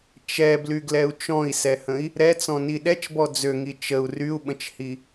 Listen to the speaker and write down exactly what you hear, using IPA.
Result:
t͡ʃɛblyɡlɛu̯ t͡ʃɔ̃i̯sɛhə̃i̯ | ɾɛt͡sɔ̃ni ɗɛt͡ʃbɔ d͡zøŋi t͡ʃəu̯ ryu̯ɓə̃t͡ʃhi

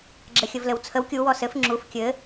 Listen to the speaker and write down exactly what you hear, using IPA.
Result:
ɡ͡ǁɘxʲəvlɘwt͡sʰəw kʲu wɔsɘf ŋ͡ǁuf kʲɘ

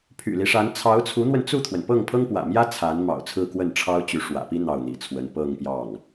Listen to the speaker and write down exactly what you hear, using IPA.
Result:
pʰy̰˨˩li˦ʂa˧˥n t͡sʰɑ˧˥ʊ̯t͡sʰu˧˥n̪wə˧n t͡su˥˩t̪ʰwə˩n pɤ˥˩ŋpʰɤ˥ŋpwä̰˨˩mjä˥ t͡sʰa˧˥n mɑ̰˨˩ʊ̯ t͡sʰɹ̩˥˧kwə˥˩n ʈ͡ʂʰɑ˥ʊ̯t͡ɕy˧˥ ʂwä̰˨˩pi˥ n̪ɑ˥˩ʊ̯n̪ḭ˨˩t͡sʰwə˧˥n pɤ˥˧ŋpjɑ˥˩ŋ

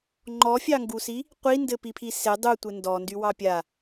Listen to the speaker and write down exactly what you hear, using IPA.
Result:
ŋ͡ǃɔfʲɑŋɡusi | qʷindɘpipʰi se dˤutʷɘ ndɔndywɑ pʲa

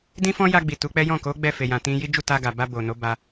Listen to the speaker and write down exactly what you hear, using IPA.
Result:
dĩ˦fɔ̃˦ja˧ ɡ͡bi˨tu˨˦k͡pɛ˦ jɔ̃˦˨ko˨˦ ɡ͡bɛ˦˨fe˨jã˨ tĩ˧ji˦ d͡ʒu˦˨ta˧ ɡa˨ba˧bo˨ no˨˦ba˧

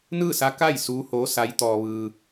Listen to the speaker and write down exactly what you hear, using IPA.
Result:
nɯː˥˨sa˧˥ka˥˨j suː˧˥hoː˧˥sa˧˥jt̪ɔː˧ ʋɯː˧

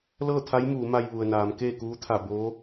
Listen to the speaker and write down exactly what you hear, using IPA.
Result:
lɤː˥˨t̪ʰa˧˥j muː˩˧ma˧j ʋu˩ə̯naː˩˧m keː˥˨kuː˧˥t̪ʰa˧˩ boː˧˥

